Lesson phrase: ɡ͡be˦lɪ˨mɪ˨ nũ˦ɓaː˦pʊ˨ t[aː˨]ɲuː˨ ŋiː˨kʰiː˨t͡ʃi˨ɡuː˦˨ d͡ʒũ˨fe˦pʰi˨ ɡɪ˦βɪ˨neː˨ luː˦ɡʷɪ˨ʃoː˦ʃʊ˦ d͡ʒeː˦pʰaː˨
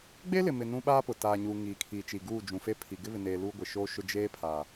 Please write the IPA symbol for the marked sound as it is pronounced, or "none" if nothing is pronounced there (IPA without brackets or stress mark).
aː˨